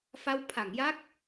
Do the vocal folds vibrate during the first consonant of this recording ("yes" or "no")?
no